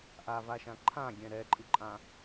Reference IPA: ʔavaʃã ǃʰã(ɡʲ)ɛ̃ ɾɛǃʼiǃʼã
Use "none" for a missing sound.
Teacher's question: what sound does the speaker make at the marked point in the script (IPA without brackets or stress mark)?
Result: ɡʲ